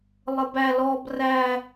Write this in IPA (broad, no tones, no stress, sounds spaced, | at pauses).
lˠ ə b æ l ɔ b r æ